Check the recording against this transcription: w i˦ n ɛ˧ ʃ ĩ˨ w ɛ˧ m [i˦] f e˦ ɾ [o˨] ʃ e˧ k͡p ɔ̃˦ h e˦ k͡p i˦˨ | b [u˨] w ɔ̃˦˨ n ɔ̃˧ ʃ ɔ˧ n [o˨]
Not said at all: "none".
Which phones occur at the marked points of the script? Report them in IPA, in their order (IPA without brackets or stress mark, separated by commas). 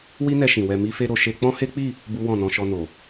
i˦, o˧, u˦, o˨